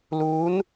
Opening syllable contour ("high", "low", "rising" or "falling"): rising